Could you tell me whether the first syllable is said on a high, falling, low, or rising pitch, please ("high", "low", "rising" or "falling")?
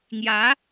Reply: rising